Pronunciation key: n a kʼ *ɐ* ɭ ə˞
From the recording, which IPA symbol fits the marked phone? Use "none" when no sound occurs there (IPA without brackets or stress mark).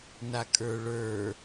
ə˞